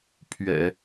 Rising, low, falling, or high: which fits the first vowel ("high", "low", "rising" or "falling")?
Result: low